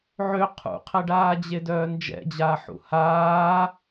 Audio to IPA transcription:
ʕ ø qʰ ṵ qʰ ɛ ɖ aː d͡ʑ e d œː n d͡ʒ ɛ̰ d͡ʑ aː ħ ṵ h aː

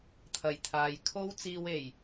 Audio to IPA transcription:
t̪ʰ ɐ˨˩ j t̪ʰ aː˨ j kʰ o˥ w t͡s iː˧ w e˨˩ j

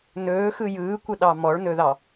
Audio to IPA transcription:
n ɵː x ɯ j ɯː kʷ ə ɗ ɑ m ɔ ɭ n ɵ ð ɑ

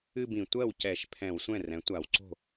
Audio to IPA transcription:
ɨ˥˧ b ĩ˧˩˧ tʷ ɜ˥˩ w c ɛ˧˩˧ ʃ pʰ ɛ̃˧˩˧ w sʷ ɛ̃˥˩ r ɛ̃˩˥ tʷ a˧˩˧ w ǀ o̤˥˩

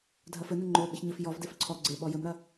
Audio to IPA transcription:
dʱ ɐ f ɘ n ɘ ŋ͡ǃ o ɓ ɘ ç ɲ ɘ f j ɔ v d e f ǀʰ ɔ ɡ͡ǀ e ɓ ɔ j ɘ m ɾ ɐ

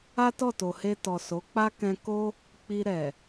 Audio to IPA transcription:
a˦ t ɔ˦˨ t o˨ h e˧ t ɔ˨ s o˨˦ k͡p a˦ k ɛ̃˧ k o˦ | k͡p i˧ ɾ ɛ˨

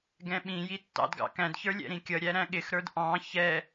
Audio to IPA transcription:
ɡ ɛ̃ ɓ ĩ j i tː ɑ̰ d ɡ ɑ̰ k æ̃ d ç ə˞ lʲ ɛ̰ ɾ ĩ kʲ ʌ ɾʲ æ ɾ æ̃ ɠ ɪ x ɾ ə˞ d ʔ ɑ̃ ç ɛ

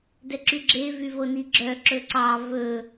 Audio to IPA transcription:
d ɛ ǁ y ɡ͡ǁ e v y v o n i ɡ͡ǁ œ ǁ ɵ ǀ ɑ v ɵ

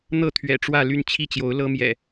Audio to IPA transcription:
n̪ ɤ˥˨ t̪ʰ ɥ ɛ̰˨˩ ʈ͡ʂ w ä˥˨ l y˥˨ n t͡ɕʰ i˥˨ t͡ɕ j o˨˦ ʊ̯ l ɤ˦ m j ɛ̰˨˩

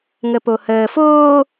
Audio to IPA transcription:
ŋ ə p o h əː f oː

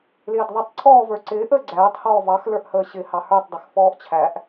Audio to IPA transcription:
l ɪː d ðˤ ɪ tˤ ǀʰ ɔː v ə˞ ǀ ɪː ʔ əː ɡ͡ǀ æː tˤ h ɔː v ɑ x l ə˞ ʔ h əː ɕ ɪː h ɑ h ə˞ tˤ dˤ ɪ x f ɔː ʔ t͡ɕʰ æ ʔ

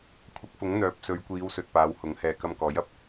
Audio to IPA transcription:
kʷʰ ɐ˨˥ k̚ f ʊ˨˥ ŋ n̪ œː˨˥ p̚ s ɵ˨˧ ɥ kʷ iː˨˧ w s ɵ˨ t̚ p aː˨˧ w h ʊ˨˥ ŋ h ɛː˨ k ɐ˧ m k ɔː˨˥ j ɐ˨ p̚

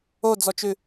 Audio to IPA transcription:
o d͡z ɔ t͡ʃ ʉ

